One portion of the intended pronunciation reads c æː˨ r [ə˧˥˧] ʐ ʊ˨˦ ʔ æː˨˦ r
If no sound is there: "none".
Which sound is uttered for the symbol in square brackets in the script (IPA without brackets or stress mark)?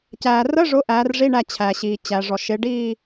ə˧˥˧